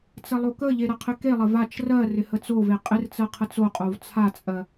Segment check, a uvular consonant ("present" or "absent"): present